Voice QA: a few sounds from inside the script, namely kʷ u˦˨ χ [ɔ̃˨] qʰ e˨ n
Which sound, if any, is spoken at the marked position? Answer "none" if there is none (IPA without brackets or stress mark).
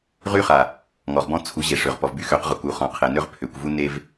ɔ̃˨